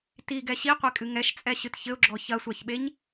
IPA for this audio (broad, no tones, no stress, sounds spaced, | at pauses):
t i ɡ ɛ ɕ i qʷ e kʼ ɨ ŋ ɛ ʃ t͡sʼ ɛ ɕ ɨ t ç ɘ ʊ̯ ɡ͡ǁ ɔ ç ɐ sʷ a ç ɓ e ɲ